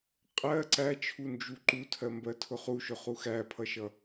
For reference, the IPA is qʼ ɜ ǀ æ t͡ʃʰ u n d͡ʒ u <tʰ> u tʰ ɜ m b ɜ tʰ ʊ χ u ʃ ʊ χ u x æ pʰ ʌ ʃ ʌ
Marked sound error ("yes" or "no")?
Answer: yes